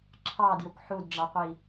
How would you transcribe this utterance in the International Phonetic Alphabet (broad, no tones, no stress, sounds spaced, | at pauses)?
ǁʰ ɑ d j ʊ kʷ ħ u d ɖ͡ʐ ɑ qʷ i